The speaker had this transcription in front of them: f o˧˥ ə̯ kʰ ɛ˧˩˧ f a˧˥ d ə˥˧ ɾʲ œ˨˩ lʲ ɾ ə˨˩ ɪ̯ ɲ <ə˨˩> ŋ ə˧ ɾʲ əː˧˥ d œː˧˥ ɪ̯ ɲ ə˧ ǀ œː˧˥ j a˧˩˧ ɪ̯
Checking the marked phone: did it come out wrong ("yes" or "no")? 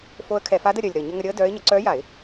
yes